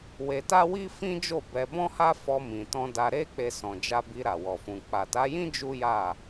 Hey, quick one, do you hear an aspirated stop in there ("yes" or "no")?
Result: no